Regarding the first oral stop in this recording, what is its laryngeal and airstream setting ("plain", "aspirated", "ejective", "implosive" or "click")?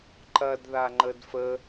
click